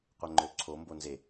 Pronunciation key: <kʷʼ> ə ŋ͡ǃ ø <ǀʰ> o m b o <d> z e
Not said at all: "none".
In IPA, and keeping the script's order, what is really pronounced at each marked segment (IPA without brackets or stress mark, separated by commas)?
qʷ, ǀʰ, n